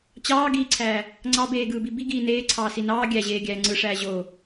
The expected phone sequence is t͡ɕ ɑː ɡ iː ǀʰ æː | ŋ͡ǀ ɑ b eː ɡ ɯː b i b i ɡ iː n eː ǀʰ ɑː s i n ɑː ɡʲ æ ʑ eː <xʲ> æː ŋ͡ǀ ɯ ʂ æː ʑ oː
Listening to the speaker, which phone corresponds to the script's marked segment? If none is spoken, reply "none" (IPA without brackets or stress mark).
ɡʲ